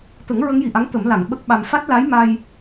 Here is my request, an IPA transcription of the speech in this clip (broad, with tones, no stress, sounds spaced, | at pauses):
t̪ ə˨˩˦ ŋ ɹ ə˧˥ ŋ j i˨˩˨ ʔ a˧˥ ŋ t̪ ə˨˩˦ m l a˨˩˨ ŋ ɓ ə˦˥ k̚ ɓ a˧ m f a˦˥ t̚ l a˧˥ j m a˧ j